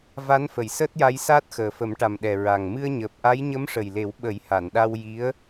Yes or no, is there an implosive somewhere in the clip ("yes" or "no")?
yes